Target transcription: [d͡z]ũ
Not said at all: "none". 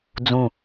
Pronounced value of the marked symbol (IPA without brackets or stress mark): d͡z